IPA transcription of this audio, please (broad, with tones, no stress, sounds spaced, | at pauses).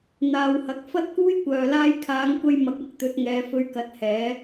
n̪ aː˨ w h ɐ˨ k̚ f ɐ˥ t̚ k uː˥ j kʷ œː˨ l aː˥ j kʰ aː˨˧ ŋ kʷ ɐ˧ j m ɐ˨˥ k̚ ɐ˧ k̚ t̪ ɵ˨˥ t̚ ŋ ɛː˨˧ f ɵ˧ ɥ k ɐ˨˥ t̚ h ɛː˨˥